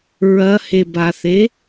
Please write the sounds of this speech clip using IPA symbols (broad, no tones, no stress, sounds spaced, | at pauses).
ɹ ɐ h e b a θ e